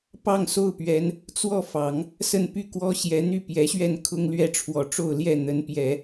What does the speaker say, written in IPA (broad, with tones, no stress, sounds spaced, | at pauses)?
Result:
p ɑ˥˧ ŋ s o˥˩ ʊ̯ p ɥ ɛ˧˥ n | t͡s w ɔ˥˩ f ɑ˨˩˦ ŋ | s ə˥˧ n p y˥˩ k w ɔ˥ ɕ j ɛ˧˥ n̪ y˥˩ p j ɛ˧˥ ɕ ɥ ɛ˥˩ n kʰ ʊ˥ ŋ l ɥ ɛ˥˩ ʈ͡ʂʰ w ɔ˧˥ ʈ͡ʂ o˥˧ ʊ̯ l j ɛ˥˩ n̪ ə˧˥ n p j ɛ˨˩˦